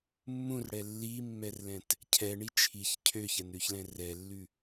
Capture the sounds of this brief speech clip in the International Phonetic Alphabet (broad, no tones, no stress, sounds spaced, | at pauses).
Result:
mː ũ r ɽ ɛ lː i mː ɛ r l ɛ̃ t | cʰ ɛ ɳ i t͡ʃʰ i ç cʰ ø ç ɛ n ɾ ʉ ç l ɛ̃ r ɛ lː ʉ